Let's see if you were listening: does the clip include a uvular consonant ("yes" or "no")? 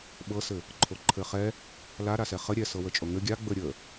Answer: yes